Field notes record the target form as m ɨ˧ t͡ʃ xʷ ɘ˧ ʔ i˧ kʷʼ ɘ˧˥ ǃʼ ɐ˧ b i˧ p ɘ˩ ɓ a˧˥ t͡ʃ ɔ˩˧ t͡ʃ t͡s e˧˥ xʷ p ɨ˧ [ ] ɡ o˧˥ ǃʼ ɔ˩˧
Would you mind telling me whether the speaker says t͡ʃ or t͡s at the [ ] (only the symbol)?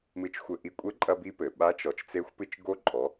t͡ʃ